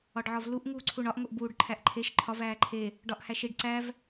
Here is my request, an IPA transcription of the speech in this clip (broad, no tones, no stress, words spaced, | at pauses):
ɒɖʕɒvluʔ ŋuːǀʰuɳɒʔ ŋoʔbuːɖ ǃʰæʔǃʰeʃ ǃʰɒv æːǃʰe | ɖɒʔhæʃiɖ ǀæv